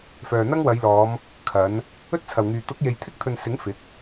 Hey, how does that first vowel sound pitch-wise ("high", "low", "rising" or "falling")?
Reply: low